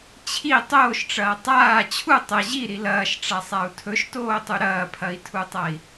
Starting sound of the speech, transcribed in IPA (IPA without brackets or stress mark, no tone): t͡ɕʰ